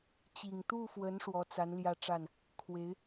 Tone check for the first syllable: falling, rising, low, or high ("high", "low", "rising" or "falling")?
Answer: low